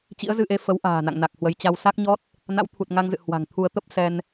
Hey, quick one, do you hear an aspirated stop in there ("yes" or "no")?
yes